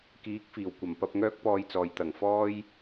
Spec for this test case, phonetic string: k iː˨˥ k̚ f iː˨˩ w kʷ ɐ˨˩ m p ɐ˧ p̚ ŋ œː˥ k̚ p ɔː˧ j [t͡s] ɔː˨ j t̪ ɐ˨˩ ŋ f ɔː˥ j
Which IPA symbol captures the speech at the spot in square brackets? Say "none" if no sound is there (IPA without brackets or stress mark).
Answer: t͡s